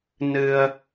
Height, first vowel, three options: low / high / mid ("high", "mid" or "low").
high